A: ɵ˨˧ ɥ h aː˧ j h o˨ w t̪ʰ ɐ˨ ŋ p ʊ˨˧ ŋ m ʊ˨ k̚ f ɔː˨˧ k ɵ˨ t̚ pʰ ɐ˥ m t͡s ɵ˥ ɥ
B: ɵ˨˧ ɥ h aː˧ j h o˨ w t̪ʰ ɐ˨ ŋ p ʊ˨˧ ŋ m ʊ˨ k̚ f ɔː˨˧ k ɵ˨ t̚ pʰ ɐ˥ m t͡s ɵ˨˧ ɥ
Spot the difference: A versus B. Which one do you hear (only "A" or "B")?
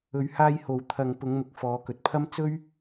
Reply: A